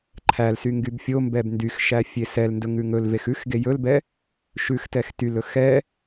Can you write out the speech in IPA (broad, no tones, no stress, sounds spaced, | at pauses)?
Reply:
ǃʰ æ l s y ŋ ɡ y b fʲ o m b ɛ b n d y x ʃ æ fʲ e s ɛ l n d ɵ ŋ ʉ ŋ ɵ l v e x ʉ x ɡ e j ɵ l b ɛ | ʃ ʉ x t ɛ x t y l ɵ x ɛ